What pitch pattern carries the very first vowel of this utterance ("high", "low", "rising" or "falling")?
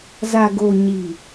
low